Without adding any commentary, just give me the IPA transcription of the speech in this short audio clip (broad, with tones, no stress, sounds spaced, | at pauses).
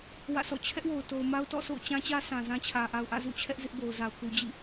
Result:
w ä̰˦˨ s ɔ̰˦˨ t͡ɕʰ ɛ˦ ʔ w o˨ ʊ̯ t o˨ ʊ̯ m a˦ ʊ̯ t ɔ̰˦˨ s o̰˦˨ ʊ̯ t͡ɕ ã˦ t͡ɕ ä˦ s ã˨ z ã˦ t͡ɕʰ ä˨ ʔ a˨ ʊ̯ ʔ ä̰˦˨ z ṵ˦˨ t͡ɕʰ ɛ˦ ʔ z ɪ˦ ʔ b o˨ ʊ̯ z a˨ ʊ̯ k u˨ d͡ʑ ḭ˦˨